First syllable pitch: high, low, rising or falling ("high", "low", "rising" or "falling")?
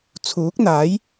rising